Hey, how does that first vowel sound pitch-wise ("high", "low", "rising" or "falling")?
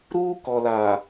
high